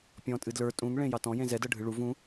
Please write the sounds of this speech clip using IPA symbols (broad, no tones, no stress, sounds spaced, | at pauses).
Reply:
pʲ ɔ̃ tʼ ɨ d l ə˞ tʼ ũ ŋ ɭ ẽ j ɑ t ɔ̃ j ẽ z ɛ d ɤ ɖʱ ɨ ɭ u v ũ